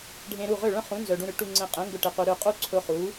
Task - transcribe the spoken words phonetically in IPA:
ɖʱẽ˧ɾu˥˩ ʁø˥˩ɭœ̃˥χũ˩˥ nzœ˩ɖũ˧ɾʏ˩˥ ʈu˧ŋ͡ǀẽ˧qʼẽ˩˥ŋɡʊ˧ ʈe˩qu˩ ɾø˥˩qʼu˥ǀʰʊ˧ χu˩˥

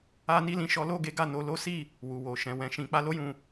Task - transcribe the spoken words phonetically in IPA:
a˦ni˦lĩ˦ʃɔ˦ lo˦˨ɡe˨˦ ɡa˦˨no˧lo˦ si˦˨ | wu˨wo˨ ʃɛ̃˨ wɛ̃˨˦ʃĩ˧k͡pa˦ lo˦jũ˧

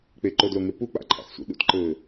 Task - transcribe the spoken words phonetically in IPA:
k͡peǃodloŋe pu k͡pa̰ǃʰa̰xsʷḭ ɗṵtǃɘː

